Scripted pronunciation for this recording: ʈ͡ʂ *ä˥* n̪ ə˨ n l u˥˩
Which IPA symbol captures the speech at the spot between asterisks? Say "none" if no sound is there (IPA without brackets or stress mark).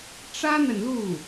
ä˥